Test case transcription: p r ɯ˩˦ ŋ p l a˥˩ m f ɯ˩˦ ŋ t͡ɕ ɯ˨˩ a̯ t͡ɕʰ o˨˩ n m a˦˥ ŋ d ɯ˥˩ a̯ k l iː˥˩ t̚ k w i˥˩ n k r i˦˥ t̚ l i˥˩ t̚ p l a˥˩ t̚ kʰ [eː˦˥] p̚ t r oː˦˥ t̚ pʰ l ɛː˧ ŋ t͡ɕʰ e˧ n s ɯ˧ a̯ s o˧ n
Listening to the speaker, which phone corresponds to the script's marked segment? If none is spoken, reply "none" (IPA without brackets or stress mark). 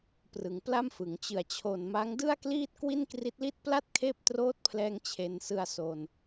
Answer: eː˦˥